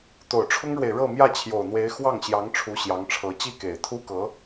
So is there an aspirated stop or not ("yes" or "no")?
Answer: yes